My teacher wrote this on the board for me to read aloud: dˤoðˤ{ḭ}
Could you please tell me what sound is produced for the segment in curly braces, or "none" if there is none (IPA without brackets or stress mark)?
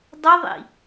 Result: ḭ